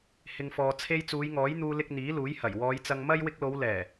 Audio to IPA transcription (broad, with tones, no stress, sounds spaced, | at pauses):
h ɪ˨ ŋ f ɔː˨ t͡sʰ e˧ j t͡s uː˨˧ j ŋ ɔː˨˥ j n̪ uː˧ l ɪ˧ k̚ n̪ iː˨˥ l uː˨˥ j h ɐ˨˩ j w ɔː˨˧ j t͡s ɐ˧ ŋ m ɐ˥ j w ɪ˧ k̚ l o˨˧ w l ɛː˨˩